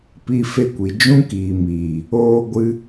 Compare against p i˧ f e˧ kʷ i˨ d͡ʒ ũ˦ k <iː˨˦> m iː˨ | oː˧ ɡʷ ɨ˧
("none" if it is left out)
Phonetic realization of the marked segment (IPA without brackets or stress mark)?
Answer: iː˨